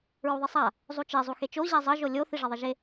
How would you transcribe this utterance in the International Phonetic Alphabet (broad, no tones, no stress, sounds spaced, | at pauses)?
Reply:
ɹ u ðˤ e sˤ a | zˤ u t͡ʃ e zˤ u x e t͡ʃ o ʑ ɛ zˤ ʌ ʒ o lʲ o θ i ʐ ʌ ðˤ ʌ ʒ e